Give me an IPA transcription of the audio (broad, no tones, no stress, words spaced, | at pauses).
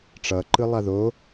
ʈ͡ʂʌǃɯlˠa ðo